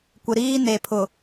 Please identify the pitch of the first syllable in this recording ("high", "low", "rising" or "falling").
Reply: low